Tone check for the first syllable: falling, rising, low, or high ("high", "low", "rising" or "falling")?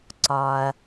low